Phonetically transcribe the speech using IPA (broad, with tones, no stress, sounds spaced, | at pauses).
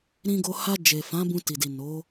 ɾ ĩ˧ ɡ o˧ h a˧ d͡ʒ e˨ f ã˨˦ b ũ˧ t i˨ d i˨ n o˨˦